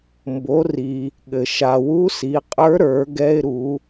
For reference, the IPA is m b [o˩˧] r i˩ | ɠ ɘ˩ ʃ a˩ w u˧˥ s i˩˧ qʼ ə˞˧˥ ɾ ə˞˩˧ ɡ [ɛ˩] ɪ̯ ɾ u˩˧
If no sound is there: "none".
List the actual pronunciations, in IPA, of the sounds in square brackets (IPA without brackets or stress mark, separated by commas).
o˩˧, ɛ˧